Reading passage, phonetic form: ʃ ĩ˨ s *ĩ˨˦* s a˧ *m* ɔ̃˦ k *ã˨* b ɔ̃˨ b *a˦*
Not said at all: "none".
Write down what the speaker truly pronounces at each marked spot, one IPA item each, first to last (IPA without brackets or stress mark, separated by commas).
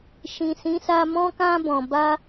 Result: ĩ˨˦, m, ã˧, a˧